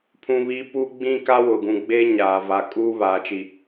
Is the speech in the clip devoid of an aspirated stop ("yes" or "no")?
no